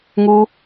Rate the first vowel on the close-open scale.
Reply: close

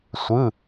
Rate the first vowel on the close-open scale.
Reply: close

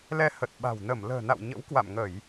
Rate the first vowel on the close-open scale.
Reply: mid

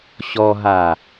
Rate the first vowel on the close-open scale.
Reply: mid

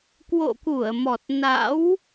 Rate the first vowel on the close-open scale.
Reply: mid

